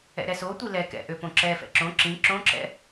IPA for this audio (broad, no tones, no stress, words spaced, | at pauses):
ɛ̰ɾɛsotʷi lɛkɛ̰ ʔøpõǁɛfɛ̰ ǁõ ǁĩ ǁõǁɛ̰